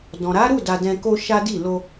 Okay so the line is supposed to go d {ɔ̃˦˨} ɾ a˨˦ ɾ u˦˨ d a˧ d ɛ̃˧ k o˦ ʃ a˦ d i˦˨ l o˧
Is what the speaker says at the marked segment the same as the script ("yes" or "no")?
no